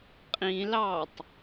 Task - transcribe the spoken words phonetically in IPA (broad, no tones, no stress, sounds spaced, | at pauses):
qʼ ĩ l ɑː tˤ